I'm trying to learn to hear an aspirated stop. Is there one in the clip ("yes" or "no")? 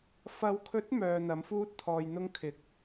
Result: yes